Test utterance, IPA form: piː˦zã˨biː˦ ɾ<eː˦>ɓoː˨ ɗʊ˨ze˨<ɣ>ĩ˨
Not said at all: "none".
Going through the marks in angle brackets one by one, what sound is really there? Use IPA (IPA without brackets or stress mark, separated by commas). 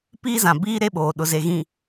e˦, ɣ